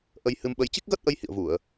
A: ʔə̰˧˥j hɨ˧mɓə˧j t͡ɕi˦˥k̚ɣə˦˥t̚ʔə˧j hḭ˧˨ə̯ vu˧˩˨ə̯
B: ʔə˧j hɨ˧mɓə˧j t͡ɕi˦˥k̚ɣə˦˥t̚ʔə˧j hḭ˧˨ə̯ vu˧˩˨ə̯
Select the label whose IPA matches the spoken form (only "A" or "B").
B